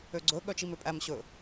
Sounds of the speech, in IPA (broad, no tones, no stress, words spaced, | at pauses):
øɡ͡ǀɵ ɠœt͡ʃimøpʼæm ɕɵ